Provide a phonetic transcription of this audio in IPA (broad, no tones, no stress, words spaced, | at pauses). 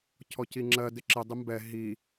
cʰɔciŋ͡ǁɜ dɪǁɪ dˤɪmbɛ ɦi